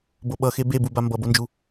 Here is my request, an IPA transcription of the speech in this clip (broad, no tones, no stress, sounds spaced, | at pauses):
b o ɓ ʌ x e b e b u b a m b ʌ b o n d͡ʒ u